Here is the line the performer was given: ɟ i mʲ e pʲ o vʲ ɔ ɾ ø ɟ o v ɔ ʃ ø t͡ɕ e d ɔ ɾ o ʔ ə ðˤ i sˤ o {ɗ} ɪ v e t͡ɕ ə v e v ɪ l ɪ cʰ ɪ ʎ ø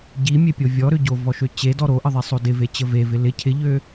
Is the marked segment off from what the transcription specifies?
yes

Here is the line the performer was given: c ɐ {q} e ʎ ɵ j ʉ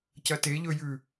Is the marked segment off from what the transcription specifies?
yes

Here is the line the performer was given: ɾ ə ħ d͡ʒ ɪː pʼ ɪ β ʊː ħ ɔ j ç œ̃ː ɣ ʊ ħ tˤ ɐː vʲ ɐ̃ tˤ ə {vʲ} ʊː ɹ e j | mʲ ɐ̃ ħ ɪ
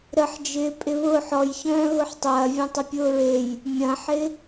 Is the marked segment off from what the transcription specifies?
yes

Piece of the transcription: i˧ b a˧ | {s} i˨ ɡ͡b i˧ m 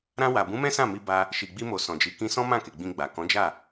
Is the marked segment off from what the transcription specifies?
yes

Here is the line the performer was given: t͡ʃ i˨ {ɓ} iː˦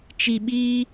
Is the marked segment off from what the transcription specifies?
no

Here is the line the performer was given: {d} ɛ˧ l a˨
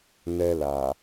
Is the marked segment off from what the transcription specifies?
yes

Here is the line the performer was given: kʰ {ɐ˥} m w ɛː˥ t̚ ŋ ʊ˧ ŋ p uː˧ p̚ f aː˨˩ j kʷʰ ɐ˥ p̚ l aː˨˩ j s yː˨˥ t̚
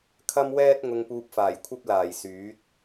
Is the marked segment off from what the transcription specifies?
no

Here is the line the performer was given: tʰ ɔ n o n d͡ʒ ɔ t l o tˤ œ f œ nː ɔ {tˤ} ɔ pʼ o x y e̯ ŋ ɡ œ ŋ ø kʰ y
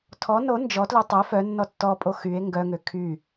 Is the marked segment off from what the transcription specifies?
yes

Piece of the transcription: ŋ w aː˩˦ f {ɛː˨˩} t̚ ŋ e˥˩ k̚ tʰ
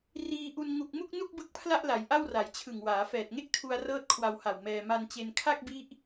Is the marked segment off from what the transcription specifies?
no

